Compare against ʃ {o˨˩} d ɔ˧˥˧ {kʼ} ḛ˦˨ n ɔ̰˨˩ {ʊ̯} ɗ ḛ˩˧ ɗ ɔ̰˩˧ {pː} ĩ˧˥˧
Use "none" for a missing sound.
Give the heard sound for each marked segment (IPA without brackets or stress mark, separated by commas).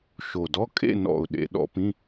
o˨˩, kʼ, ʊ̯, p